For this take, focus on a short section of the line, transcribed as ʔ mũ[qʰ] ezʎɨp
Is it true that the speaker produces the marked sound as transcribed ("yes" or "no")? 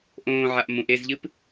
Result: no